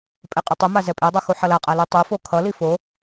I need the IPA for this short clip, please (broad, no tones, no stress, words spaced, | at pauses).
pʼɛqʼʌtˤɯma zɛpʼedˤo xuħʌlaqʼa lutˤufo kʰʌli fo